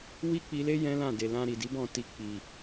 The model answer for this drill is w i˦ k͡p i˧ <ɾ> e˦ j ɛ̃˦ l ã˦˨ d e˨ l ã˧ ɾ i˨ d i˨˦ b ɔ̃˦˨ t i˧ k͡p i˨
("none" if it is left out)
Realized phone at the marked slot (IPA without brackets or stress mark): l